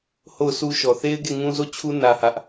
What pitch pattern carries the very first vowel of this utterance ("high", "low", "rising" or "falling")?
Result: falling